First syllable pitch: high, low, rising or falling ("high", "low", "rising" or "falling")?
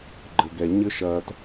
low